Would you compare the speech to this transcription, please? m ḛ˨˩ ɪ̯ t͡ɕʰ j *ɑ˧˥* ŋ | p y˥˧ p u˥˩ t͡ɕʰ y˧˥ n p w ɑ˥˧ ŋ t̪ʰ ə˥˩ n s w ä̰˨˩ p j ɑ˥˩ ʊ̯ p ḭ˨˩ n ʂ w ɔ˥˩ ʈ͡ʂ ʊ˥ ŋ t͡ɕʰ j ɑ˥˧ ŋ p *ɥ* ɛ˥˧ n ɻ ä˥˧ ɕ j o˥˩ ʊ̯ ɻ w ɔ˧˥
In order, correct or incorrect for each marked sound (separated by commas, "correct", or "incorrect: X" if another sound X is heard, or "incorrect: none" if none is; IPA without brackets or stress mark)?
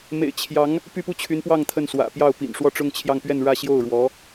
correct, correct